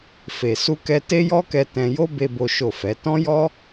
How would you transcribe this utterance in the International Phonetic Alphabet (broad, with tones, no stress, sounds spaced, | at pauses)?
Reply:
f e˨ s u˧ k ɛ˧ t e˦ j ɔ˦ k ɛ˧ t ɛ̃˧ j o˦ b e˧ b o˦ ʃ o˦˨ f ɛ˨˦ t ɔ̃˦ j ɔ˦